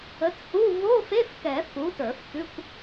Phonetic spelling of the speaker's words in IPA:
ə˨˥ t h u˧˥˧ v o˧˥˧ f e˧˥˧ f k ɛ˨˩˦ f u˨˥ t ə˞˨˩˦ f t̪ ʉ˧˥˧ kʷ

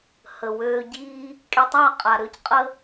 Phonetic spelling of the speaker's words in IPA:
h ə˨ w øː˧ ɟ iː˦ | kʼ e˧ tˤ a˦˨ qʼ a˨ ɾ ø˦ c qʼ ə˦

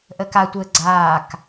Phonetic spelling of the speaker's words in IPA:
ʔ ə k a tʷ əː ɡ͡ǀ aː k

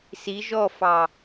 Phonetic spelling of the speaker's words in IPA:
s i ʒ ɔ f ɑ

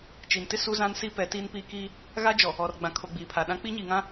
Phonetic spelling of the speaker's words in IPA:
t͡ʃ i˨ n t ɪ˦ s u˦ z ã˦ n s i˦ p ɛ˨˦ t iː˦ n p iː˦ k iː˦ | ɣ a˦ d͡ʒ ɔ˨ | ɔ˨ r ɡ͡b ã˨ kʰ o˨ ɡ͡b iː˨ pʰ a˨ ɗ ã˦ k͡p i˦ ɲ iː˨ ŋ ã˦

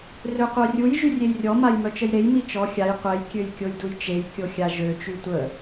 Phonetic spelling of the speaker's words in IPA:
r ø qʷ œ rʲ u j ʒ y rʲ e j rʲ ɔ m a j m œ t͡ʃ ə j ɾ e j m i t͡ʃ ɔ xʲ a j qʷ ɛ j kʲ ø j kʲ o j d u j t͡ʃ e j kʲ o xʲ a ʒ ø t͡ʃ y tʷ ə

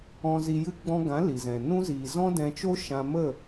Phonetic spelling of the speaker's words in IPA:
ɔ̃˧ z i˧ j ɨ˦ ɡ͡b ɔ̃˧ ɡ ã˨˦ l i˨ z ɛ̃˨ n ũ˧ z iː˨ z ɔ̃˦ d ɛ̃˧ t͡ʃ o˦ ʃ ã˧ m ə˦˨

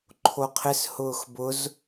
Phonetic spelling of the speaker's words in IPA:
ǃʰ o qʰ ɪ s h ʊː x b ʊ z

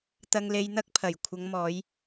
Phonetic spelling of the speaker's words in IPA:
t̪ ɐ˧ ŋ l e˧ j n̪ ɐ˥ k̚ pʰ ɐ˨˩ j kʷʰ ɐ˨˧ ŋ m ɔː˨˧ j

